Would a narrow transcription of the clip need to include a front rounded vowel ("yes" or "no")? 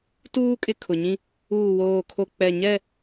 no